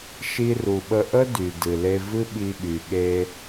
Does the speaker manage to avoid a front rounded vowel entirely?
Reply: no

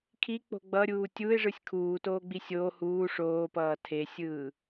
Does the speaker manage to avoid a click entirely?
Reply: yes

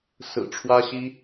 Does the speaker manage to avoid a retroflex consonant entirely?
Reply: no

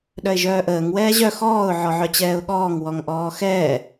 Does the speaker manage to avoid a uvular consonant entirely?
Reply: yes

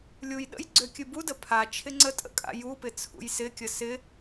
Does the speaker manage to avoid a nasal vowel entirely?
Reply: yes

